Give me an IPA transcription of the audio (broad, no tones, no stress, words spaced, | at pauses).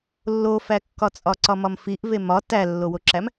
lːofækːɒt͡sʼɒ ǀɒmɒmfiʔve mɒ tælːowoǁæm